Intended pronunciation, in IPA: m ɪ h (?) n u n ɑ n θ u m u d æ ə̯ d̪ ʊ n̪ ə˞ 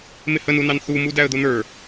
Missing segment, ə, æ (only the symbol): ə